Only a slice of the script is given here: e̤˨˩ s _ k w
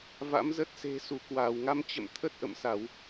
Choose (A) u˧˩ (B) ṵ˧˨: A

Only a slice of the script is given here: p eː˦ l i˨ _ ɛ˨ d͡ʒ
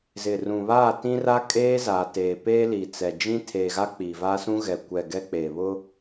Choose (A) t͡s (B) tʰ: A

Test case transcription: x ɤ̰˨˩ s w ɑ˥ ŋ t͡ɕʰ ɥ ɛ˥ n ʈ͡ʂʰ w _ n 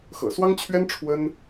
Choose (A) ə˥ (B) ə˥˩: A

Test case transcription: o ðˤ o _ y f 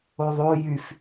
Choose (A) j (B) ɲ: A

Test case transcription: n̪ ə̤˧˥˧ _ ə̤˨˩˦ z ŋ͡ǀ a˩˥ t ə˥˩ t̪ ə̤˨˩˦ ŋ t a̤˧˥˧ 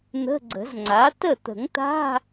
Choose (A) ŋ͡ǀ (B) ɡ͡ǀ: B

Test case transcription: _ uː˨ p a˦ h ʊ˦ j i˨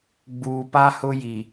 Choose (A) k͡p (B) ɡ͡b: B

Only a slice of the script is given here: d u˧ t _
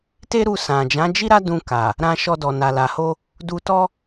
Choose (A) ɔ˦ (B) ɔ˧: A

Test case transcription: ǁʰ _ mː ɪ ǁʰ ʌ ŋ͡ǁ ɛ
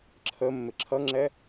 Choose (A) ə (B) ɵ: A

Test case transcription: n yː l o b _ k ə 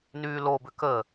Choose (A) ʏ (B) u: A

